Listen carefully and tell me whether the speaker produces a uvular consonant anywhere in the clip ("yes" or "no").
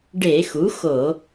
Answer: no